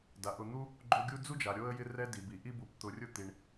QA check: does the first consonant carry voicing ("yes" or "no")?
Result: yes